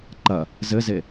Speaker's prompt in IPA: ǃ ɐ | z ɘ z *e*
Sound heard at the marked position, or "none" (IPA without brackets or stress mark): e